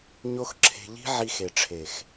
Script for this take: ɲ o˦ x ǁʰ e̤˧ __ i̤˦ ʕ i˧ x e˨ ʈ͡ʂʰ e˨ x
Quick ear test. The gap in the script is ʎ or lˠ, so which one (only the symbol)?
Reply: ʎ